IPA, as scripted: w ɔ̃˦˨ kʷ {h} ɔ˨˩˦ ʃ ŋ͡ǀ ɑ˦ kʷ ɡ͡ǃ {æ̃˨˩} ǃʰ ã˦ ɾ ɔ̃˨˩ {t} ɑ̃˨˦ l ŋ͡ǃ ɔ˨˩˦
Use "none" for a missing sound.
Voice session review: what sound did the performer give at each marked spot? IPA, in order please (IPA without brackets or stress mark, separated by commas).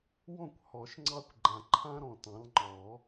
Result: h, ã˨˩, t